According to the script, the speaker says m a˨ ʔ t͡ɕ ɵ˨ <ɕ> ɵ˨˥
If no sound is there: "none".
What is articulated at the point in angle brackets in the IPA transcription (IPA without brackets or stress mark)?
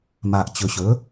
ɕ